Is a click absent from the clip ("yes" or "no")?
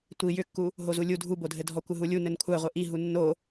yes